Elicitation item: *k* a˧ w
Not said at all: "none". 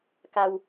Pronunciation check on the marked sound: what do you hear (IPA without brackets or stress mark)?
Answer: k